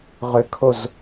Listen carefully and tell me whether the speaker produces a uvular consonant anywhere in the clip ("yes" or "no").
yes